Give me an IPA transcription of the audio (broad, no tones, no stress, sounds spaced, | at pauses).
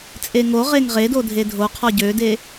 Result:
t͡sʼ e ŋ o ʁ e ŋ ʁ e d o dʱ e dʱ o qʰ ɔ ɟ ø d e